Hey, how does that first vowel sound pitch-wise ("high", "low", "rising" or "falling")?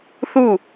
falling